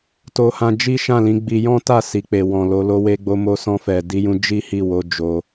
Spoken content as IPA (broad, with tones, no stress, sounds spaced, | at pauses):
t o˧ h ã˧ d͡ʒ i˦ ʃ ã˦˨ l ĩ˨˦ ɡ͡b i˧ j ɔ̃˦ t a˦˨ s i˨ k͡p e˨ w ɔ̃˨ l o˨˦ l o˧ w e˧ ɡ͡b o˧ m o˧ s ɔ̃˧ f ɛ˨ d i˧ j ũ˧ d͡ʒ i˦ h i˦˨ w o˧ d͡ʒ o˧